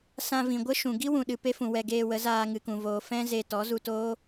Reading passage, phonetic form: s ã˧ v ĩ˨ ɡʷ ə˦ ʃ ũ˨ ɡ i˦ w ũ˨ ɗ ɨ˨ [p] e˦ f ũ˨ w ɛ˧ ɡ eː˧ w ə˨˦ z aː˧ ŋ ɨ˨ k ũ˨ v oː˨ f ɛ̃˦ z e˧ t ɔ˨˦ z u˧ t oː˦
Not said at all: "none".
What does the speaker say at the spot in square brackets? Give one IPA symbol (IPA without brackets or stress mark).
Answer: p